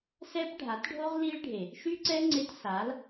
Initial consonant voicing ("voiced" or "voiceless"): voiceless